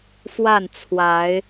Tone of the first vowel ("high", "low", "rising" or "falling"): falling